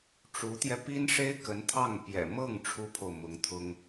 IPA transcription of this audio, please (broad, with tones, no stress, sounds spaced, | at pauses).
ʈ͡ʂ u˧˥ t̪ j ɛ˧ p i˥ n ʂ e˥ ɪ̯ k ə˧˥ n t̪ʰ ɑ˥˩ ŋ p j ɛ̰˨˩ m ɤ˥˩ ŋ ʈ͡ʂʰ u˥ pʰ o˨ ʊ̯ m ʊ˧˥ ŋ t̪ʰ ʊ˥ ŋ